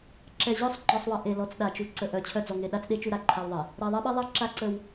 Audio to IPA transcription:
ǁ ɛ˨ ʑ œ˦˨ sˤ ŋ͡ǃ ɔ˨ sˤ w ə˨ ʔ e˨ l ɔ˨ t͡s ɗ a˨ t͡ʃ u˨ ǀ ə˨ ʔ œ˨ t͡ɕʰ œ˦ d͡z ɔ˨ ŋ e˨ ɗ a˦ t͡s ɗ e˦ t͡ʃ u˦ ɾ a˨ ǃʰ a˦ w ðˤ e˨ | ɾ ɛ˨ ðˤ ɛ˦ ɓ e˦ ðˤ a˦ ǁ a˦ ǀ ə˦ w

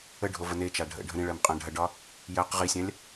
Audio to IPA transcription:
ə ɖʱ o v ə n e t͡ʃ a ɖʱ ə̰ ɖʱ ə̃ ɾ ĩ ɭ ɜ m qʼ ã ɖʱ ɐ ɖ ɒ | j ɜ q ʁ i sʲ ã lʲ

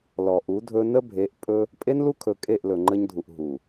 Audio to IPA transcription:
l ɔ˨ ʔ u˨˦ dʱ ɵ˦ n ə˦ bʱ e˨˦ ʔ pʼ ɵ˦ | pʼ e˦ n l u˦ kʰ ɵ˨ kʼ e˦˨ ʔ l ɵ˨ ŋ͡ǃ ə˦ ɲ dʱ u˨ ʔ ɦ u˨

